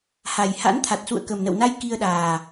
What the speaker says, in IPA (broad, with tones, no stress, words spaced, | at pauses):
ha˨˩jha̰˧˥nt̪ʰa˨˩t̚ sṵ˧˨ə̯kə˨˩mnə̰˧˨wna˧j ki˧ə̯ɗaː˨˩